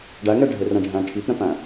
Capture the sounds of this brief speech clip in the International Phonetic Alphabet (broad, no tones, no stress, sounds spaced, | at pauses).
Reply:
ɖ æ ŋ ɛ ɖʱ e r ɛ̃ ɖʱ æ̃ ʈʰ i p ɾ ɛ̃ p æ̃